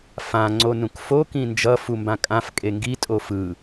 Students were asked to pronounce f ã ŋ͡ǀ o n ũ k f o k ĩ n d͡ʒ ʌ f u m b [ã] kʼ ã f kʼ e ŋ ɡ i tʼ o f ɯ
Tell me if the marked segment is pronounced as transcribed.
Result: yes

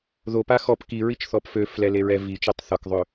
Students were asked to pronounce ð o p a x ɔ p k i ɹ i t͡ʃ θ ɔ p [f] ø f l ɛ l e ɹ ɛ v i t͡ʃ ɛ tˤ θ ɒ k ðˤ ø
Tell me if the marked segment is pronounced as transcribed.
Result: yes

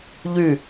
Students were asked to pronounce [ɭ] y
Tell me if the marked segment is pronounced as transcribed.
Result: no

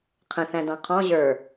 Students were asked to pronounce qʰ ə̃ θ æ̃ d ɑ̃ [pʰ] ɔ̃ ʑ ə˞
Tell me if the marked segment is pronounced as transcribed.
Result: no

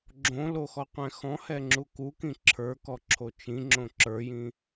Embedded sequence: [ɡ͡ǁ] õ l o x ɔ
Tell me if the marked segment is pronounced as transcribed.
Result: yes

